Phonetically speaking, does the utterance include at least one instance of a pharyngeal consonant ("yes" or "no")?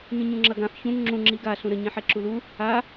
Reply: yes